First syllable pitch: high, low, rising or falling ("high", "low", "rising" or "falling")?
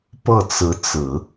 falling